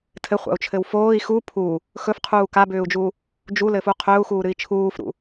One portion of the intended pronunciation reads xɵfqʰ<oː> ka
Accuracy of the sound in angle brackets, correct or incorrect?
incorrect